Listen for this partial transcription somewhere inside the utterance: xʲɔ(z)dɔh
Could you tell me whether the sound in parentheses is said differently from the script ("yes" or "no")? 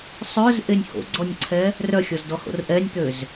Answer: no